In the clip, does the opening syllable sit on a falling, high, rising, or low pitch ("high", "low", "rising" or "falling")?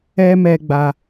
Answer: high